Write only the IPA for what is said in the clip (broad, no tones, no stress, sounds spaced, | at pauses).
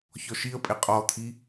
ç ɔ ʃ i ə̯ pʼ e qʼ ɔ t̪ʰ i